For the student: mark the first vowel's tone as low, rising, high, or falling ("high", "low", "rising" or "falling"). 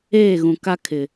falling